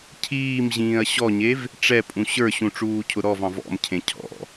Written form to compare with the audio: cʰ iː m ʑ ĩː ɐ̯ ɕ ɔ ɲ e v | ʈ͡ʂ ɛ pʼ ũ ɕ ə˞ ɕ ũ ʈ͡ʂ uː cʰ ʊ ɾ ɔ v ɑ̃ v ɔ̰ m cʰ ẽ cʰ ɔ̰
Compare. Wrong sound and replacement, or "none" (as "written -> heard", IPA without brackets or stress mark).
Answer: none